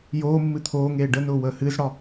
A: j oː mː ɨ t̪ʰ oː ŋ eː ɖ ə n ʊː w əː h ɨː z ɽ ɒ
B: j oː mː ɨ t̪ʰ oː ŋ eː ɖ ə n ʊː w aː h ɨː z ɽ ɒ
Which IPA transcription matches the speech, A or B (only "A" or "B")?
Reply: A